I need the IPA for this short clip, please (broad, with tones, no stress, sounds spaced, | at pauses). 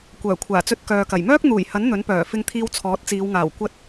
kʷ œː˨˩ kʷʰ aː˨˩ t͡s ɵ˧ t̚ k œː˨ k ɐ˨˩ j m œː˥ k̚ n̪ uː˨˩ j h ɐ˨˥ n n̪ ɵ˨˥ n p œː˨˩ f ɪ˧ ŋ t̪ʰ iː˧ w t͡sʰ ɔː˨˥ t̚ t͡s iː˨˧ w ŋ aː˨˩ w kʷ ɐ˥ t̚